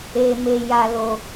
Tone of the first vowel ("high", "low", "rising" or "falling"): low